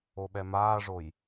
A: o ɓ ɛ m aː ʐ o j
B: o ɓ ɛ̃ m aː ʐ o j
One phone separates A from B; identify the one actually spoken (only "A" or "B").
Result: A